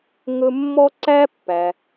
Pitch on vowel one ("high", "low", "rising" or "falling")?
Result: high